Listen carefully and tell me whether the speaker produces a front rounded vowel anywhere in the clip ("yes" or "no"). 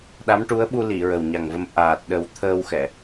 no